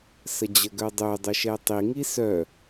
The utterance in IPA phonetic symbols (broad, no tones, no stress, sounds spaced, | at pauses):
s ə d͡ʑ ə ɡ œ dˤ ø dˤ ø ʃ ɛ tˤ i ŋ i s œ